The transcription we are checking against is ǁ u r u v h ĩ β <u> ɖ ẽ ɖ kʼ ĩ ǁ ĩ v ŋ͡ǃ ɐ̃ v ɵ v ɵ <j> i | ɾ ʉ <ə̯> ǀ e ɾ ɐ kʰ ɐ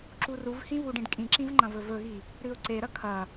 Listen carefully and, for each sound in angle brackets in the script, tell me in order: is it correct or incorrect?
correct, incorrect, incorrect

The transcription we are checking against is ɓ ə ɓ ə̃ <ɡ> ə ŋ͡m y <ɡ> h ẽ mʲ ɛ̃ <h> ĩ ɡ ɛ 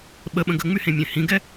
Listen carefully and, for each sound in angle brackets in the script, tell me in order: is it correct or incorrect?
correct, incorrect, correct

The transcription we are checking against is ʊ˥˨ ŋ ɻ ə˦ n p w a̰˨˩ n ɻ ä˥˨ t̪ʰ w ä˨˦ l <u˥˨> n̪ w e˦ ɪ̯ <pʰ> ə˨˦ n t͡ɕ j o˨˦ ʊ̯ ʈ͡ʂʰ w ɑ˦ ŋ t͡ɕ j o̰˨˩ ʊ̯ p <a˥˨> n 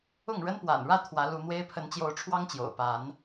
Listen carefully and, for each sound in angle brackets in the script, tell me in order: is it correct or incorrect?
incorrect, correct, incorrect

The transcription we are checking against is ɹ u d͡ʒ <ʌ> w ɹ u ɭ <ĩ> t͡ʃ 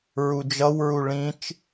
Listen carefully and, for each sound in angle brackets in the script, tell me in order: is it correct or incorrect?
correct, correct

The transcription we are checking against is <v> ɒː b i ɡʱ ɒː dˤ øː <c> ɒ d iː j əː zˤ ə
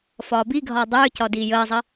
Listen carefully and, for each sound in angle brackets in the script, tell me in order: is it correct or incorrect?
incorrect, correct

